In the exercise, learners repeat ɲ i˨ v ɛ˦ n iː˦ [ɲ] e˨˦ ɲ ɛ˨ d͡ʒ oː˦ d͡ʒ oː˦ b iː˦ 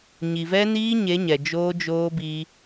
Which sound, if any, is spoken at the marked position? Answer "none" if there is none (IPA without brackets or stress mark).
ɲ